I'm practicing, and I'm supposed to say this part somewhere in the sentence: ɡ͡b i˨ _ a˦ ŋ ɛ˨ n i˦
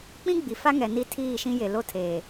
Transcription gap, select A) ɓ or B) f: B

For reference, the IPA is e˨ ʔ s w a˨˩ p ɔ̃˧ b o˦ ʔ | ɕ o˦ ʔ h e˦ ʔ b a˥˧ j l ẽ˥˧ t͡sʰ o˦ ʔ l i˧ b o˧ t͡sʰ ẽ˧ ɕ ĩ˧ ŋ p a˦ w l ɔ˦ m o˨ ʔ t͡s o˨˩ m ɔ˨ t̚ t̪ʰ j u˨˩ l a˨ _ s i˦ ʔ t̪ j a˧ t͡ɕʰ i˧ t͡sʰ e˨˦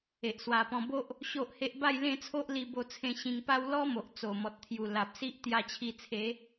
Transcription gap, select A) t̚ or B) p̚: B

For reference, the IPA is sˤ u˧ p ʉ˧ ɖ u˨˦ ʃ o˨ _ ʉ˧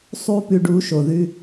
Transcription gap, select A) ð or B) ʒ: A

